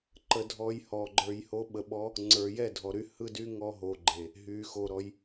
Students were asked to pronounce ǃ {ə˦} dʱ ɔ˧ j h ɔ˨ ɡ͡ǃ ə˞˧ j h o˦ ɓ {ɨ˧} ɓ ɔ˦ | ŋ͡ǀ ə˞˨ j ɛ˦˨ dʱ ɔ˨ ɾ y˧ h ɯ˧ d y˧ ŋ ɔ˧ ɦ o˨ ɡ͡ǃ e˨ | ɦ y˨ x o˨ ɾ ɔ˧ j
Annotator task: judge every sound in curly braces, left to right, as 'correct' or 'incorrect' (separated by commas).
incorrect, incorrect